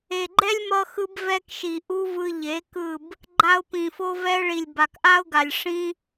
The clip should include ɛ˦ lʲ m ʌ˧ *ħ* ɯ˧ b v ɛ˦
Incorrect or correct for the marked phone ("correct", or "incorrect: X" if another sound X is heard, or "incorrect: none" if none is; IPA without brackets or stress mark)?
incorrect: x